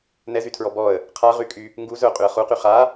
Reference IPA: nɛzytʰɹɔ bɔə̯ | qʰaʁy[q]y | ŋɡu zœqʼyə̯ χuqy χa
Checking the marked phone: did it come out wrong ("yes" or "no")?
yes